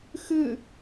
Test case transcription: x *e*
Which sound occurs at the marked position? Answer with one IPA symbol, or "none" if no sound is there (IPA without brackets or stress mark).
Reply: ɨ